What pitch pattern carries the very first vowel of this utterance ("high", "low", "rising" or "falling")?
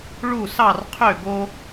falling